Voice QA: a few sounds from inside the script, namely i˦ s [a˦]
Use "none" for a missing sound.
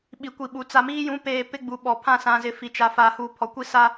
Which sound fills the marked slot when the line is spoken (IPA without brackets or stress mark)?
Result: a˦